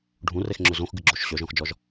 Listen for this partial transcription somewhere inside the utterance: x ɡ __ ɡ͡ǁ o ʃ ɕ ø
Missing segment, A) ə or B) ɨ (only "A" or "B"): B